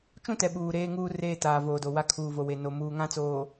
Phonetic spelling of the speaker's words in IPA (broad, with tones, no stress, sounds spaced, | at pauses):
t͡ʃ ũ˦ t ɛ˨ ɓ uː˨ ɾ eː˦ ŋ uː˦ r eː˦ t aː˨ v oː˨ d o˨ w a˦ kʰ uː˨ v o˨ w e˨ n o˨ m uː˨ ŋ ã˦ t͡s oː˨